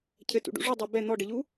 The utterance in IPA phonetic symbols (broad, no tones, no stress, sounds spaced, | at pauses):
cʰ ɘ t ṵ ɖ ṵ ʐ u dˤ a b ɛ n̪ ɔ ɖ ɘ ʎ u